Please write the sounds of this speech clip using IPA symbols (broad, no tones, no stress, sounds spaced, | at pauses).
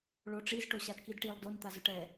ɭ o ʈ͡ʂ i z ʈ o ɕ a d k i d ʈ i lˠ d o n t̪ a z ʊ ʈ ɛ